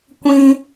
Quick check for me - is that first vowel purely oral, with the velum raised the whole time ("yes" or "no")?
no